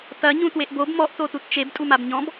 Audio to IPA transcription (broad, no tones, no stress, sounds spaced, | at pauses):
t ɐ ɲ ũ t w e ʔ b o b m ɔ ʔ t o t u t t͡ʃ e b tʼ u m a b ɲ ɔ̃ b